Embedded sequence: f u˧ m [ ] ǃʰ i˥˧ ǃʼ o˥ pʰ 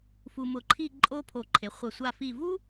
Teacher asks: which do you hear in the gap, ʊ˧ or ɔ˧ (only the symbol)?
ʊ˧